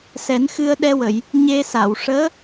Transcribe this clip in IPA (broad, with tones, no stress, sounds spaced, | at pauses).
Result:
s ɛ˨˩˦ n x ɨ˧ ə̯ ɗ ɛ˧ w ə˨˩˨ j | ɲ e˧ s a˨˩˨ w ʂ əː˧˥